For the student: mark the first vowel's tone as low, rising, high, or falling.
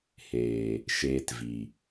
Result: low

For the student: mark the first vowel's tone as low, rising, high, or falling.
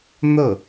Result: falling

